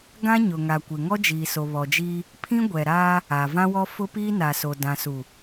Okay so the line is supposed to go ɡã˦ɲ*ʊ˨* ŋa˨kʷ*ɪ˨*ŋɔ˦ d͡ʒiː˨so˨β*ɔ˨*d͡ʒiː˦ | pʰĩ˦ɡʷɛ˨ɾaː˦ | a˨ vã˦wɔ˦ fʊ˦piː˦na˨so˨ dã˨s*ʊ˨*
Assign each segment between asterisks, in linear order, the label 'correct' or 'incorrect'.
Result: correct, correct, correct, incorrect: u˨

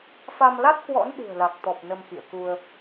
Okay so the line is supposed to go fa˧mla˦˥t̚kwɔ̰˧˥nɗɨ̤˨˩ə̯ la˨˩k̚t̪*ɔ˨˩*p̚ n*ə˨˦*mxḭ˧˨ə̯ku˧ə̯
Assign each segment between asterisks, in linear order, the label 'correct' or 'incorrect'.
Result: correct, incorrect: ə˧

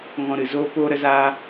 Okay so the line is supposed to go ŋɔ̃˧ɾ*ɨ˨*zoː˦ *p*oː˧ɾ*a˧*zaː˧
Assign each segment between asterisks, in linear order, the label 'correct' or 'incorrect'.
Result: correct, correct, incorrect: ə˧

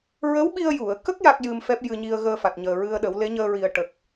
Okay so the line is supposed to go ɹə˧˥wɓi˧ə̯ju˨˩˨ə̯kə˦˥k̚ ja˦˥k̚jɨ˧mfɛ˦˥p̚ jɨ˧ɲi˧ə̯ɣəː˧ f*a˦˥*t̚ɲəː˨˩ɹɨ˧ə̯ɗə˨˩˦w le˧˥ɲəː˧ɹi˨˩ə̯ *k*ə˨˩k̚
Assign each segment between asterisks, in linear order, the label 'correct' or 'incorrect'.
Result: incorrect: a˨˩, incorrect: ʈ

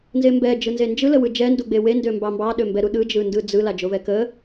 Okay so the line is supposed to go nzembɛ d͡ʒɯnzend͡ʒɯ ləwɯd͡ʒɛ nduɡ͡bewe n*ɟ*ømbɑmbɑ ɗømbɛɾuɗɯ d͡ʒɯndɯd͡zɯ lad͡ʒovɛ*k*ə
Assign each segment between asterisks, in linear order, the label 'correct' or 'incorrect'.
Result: incorrect: d, correct

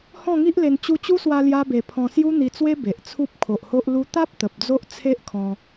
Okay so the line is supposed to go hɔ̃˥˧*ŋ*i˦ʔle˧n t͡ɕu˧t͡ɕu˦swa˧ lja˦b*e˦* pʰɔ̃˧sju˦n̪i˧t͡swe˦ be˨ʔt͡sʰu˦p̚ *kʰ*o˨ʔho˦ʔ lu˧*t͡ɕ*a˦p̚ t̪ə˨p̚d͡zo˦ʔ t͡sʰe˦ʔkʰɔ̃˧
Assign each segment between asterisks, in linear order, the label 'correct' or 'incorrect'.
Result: correct, incorrect: e˧, correct, incorrect: t̪

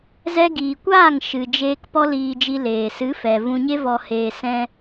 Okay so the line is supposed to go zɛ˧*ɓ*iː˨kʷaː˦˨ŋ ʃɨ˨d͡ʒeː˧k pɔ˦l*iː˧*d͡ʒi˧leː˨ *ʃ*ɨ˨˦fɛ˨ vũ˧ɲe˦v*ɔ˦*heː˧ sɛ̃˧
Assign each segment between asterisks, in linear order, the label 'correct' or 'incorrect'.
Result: incorrect: ɡ, correct, incorrect: s, incorrect: ɔ˧

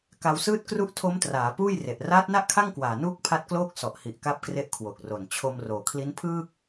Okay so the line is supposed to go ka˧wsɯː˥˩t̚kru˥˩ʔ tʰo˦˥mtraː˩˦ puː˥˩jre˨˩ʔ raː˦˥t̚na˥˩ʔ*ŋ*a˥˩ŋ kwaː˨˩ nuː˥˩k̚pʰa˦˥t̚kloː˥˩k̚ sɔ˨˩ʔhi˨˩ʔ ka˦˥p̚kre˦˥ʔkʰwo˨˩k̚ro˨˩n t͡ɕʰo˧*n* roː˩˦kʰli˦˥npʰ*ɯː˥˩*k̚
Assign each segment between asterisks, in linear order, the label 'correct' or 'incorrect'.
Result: incorrect: kʰ, incorrect: m, correct

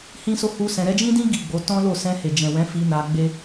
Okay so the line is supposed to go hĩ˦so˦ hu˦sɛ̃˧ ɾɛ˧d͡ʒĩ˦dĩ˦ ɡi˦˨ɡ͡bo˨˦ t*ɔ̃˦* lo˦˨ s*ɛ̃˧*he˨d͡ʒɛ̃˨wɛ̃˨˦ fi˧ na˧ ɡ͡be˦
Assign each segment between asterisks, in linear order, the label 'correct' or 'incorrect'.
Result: correct, correct

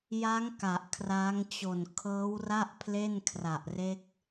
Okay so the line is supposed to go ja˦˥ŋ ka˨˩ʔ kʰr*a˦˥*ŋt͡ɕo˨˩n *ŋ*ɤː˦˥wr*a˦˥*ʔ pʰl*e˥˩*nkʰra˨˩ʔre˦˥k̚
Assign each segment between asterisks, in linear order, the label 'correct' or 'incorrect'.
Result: correct, incorrect: kʰ, incorrect: a˥˩, correct

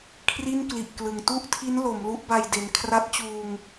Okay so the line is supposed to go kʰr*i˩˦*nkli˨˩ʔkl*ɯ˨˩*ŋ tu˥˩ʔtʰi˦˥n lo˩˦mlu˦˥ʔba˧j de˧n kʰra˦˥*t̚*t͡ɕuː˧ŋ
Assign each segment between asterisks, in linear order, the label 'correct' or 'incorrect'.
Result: incorrect: i˥˩, correct, correct

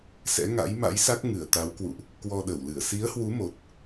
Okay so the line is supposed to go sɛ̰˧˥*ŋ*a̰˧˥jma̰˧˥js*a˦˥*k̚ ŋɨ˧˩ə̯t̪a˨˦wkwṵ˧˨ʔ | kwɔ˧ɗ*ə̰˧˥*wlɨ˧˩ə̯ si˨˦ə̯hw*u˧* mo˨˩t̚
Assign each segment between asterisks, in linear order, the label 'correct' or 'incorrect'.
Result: correct, correct, incorrect: ə˧˩, incorrect: u˨˦

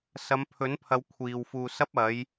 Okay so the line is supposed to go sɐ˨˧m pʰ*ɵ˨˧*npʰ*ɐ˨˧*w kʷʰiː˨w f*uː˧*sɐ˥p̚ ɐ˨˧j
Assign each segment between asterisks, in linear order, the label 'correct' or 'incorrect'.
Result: incorrect: ɵ˨˥, correct, correct

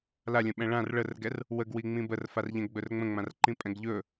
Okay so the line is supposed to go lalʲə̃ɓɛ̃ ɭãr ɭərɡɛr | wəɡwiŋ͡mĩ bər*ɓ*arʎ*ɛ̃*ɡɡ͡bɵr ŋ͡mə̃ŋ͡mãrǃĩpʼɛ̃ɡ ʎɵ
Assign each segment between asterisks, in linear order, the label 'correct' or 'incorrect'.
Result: incorrect: f, correct

